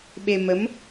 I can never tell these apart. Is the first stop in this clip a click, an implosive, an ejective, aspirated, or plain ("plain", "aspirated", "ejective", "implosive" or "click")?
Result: implosive